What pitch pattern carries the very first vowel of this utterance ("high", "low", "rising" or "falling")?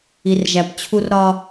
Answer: low